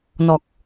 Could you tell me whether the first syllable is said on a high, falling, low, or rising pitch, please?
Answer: low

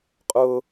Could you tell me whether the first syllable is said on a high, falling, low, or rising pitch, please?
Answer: high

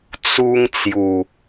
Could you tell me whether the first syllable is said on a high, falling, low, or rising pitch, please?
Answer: high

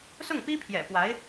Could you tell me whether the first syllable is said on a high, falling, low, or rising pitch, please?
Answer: falling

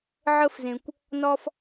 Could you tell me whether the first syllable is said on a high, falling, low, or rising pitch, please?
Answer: high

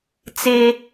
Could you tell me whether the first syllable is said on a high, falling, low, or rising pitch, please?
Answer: high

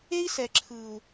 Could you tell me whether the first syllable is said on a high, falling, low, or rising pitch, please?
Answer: high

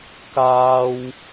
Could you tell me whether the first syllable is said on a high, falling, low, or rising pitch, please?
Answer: high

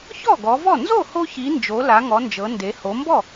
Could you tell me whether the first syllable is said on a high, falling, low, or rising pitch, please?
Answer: falling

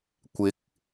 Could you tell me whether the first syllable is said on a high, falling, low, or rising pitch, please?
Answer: rising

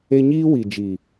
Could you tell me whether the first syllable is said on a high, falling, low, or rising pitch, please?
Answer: high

